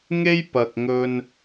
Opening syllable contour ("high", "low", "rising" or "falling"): high